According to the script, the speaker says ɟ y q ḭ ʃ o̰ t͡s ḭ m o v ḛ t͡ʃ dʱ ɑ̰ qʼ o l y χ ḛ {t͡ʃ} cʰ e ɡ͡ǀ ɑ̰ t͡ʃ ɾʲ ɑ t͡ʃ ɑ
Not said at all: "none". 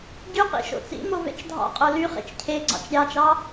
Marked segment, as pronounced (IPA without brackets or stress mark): t͡ʃ